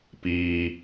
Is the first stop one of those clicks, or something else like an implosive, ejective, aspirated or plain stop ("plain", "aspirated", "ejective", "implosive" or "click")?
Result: plain